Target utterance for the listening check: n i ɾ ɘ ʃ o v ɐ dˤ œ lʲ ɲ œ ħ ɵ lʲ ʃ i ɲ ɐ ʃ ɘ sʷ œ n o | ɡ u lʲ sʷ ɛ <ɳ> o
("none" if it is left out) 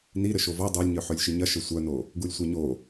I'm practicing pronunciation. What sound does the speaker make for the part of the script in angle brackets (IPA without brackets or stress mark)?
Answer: ɲ